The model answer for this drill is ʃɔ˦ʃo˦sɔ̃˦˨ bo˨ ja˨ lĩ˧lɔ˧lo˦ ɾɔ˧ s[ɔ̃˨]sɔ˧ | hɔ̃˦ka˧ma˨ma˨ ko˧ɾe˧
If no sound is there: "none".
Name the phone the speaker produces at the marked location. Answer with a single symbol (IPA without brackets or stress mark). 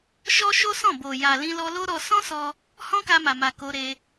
ɔ̃˦